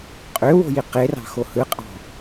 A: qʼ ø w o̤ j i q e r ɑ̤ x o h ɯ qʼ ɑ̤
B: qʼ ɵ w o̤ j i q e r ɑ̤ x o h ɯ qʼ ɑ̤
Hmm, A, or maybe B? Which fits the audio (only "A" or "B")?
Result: A